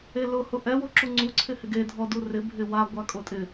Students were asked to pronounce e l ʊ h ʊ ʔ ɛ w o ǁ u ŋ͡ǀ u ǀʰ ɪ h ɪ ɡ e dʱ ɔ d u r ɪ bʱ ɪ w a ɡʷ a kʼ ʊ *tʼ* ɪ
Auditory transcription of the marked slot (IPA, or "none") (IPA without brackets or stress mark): tʼ